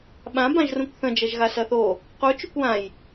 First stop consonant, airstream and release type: implosive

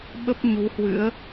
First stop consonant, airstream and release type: implosive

